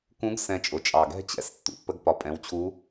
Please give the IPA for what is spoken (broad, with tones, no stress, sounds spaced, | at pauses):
k ũ˧˥ ɡ s ɛ̃˧ t͡ʃʼ ʊ˨˩ t͡ʃʼ ɑ˨˩ ɡ ɛ̤˥ t͡ɕ ɛ̰˧˥ s tː ṵ˩˧ pː ə˧˥ ɡ p ɒ˩˧ pʼ ɛ̃˩˥ w t͡ɕʰ u˧˥